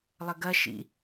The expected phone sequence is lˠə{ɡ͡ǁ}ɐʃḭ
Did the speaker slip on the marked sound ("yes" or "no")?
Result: yes